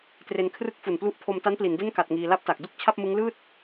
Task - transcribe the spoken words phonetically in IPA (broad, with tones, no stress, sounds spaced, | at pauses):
t r e˧ n kʰ r ɯ˦˥ k̚ f u˨˩ n p l u˦˥ ʔ pʰ o˧ m t a˦˥ n p l i˩˦ n d e˥˩ n k a˨˩ t̚ ŋ iː˧ l a˦˥ p̚ t a˨˩ k̚ d u˥˩ k̚ t͡ɕʰ a˥˩ p̚ m ɯ˦˥ ŋ l ɯː˥˩ t̚